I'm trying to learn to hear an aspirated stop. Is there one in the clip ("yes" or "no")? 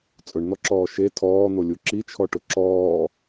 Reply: yes